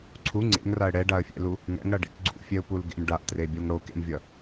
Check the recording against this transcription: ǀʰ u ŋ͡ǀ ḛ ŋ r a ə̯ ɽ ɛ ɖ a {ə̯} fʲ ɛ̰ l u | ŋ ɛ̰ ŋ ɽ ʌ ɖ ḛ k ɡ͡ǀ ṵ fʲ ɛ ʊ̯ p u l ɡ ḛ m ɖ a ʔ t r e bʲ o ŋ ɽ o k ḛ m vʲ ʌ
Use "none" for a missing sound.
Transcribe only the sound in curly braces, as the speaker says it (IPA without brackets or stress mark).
ə̯